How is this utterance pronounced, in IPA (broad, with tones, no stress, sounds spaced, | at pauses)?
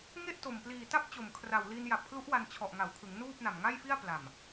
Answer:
ŋ e˥˩ ʔ t o˨˩ m p l iː˨˩ t a˥˩ p̚ t͡ɕ o˨˩ m kʰ r a˨˩ w l i˧ n j a˨˩ p̚ kʰ l u˦˥ ʔ w a˧ n t͡ɕʰ ɔ˨˩ ʔ ŋ a˩˦ w kʰ ɯ˩˦ ŋ n uː˥˩ p̚ n a˨˩ m ŋ a˥˩ j f i˥˩ a̯ p l a˨˩ m